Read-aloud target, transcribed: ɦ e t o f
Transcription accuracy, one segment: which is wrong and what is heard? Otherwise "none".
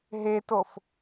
none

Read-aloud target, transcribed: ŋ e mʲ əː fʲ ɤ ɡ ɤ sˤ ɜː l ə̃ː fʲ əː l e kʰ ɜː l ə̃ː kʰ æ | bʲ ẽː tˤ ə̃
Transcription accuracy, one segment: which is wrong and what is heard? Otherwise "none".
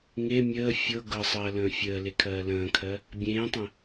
æ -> ɜ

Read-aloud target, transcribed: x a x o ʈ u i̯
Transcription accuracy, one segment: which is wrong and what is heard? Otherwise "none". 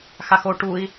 none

